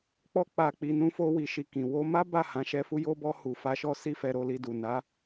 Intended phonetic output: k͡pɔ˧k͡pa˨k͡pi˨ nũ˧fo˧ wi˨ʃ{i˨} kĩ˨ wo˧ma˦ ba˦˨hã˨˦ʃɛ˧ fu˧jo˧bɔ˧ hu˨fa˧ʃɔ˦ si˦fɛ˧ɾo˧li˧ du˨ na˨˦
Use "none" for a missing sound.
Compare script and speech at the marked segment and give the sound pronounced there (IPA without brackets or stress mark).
i˨